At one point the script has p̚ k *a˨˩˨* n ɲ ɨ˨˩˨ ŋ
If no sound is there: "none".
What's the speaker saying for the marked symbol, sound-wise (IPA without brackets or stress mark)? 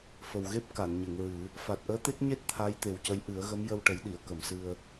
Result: a˨˩˨